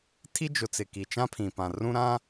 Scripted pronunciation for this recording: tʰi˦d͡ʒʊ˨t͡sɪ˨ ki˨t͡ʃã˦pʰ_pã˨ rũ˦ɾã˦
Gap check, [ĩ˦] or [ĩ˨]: ĩ˨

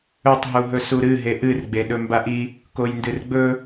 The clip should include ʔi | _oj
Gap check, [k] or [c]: k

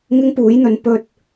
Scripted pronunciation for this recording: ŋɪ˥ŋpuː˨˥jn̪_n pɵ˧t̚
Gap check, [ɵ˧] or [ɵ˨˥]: ɵ˨˥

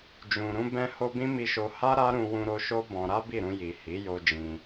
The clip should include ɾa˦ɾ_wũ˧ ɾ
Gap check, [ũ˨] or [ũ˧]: ũ˧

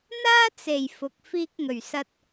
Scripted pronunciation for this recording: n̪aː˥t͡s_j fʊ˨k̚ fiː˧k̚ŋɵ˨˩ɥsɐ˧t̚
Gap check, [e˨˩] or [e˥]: e˨˩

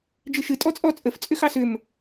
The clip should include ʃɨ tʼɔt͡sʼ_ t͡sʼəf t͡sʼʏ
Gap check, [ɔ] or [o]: ɔ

